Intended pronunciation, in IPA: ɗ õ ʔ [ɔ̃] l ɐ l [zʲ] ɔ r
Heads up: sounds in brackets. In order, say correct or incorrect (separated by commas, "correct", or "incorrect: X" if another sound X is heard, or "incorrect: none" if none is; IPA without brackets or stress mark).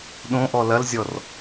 incorrect: ɔ, correct